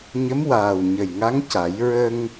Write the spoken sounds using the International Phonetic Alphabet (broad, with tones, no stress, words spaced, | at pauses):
ɲə˧˥mwaː˨˩wɲə˨˩jŋa˧˥ŋ ca˨˩˦j ɹə˧ŋ